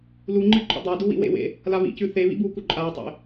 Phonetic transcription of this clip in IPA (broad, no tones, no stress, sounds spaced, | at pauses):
l u ŋ͡ǃ ɨ ǃʼ o̰ dˤ a d u w ḭ w ḛ w ḛ | l a β ḭ c ʉ θ e β ḭ b u k u ǃʼ a tˤ ḛ